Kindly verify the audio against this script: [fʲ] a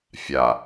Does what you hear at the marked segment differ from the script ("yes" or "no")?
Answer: no